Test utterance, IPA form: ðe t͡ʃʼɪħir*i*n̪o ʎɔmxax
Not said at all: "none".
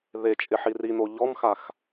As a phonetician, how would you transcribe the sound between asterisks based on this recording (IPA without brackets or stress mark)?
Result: i